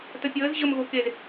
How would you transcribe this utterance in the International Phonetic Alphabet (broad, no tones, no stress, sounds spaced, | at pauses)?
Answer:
t ə pʲ əː z ʑ ə m ɣ o k e z